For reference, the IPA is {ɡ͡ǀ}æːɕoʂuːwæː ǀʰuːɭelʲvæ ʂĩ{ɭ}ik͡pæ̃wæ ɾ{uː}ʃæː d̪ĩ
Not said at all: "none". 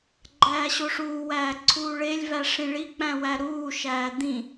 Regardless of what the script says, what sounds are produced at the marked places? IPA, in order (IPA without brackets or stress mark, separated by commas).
ɡ͡ǃ, ɭ, uː